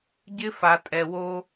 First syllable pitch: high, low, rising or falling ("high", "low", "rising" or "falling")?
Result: high